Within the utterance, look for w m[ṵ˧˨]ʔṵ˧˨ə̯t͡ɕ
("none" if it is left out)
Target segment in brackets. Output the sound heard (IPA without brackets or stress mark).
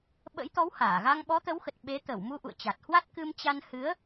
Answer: u˧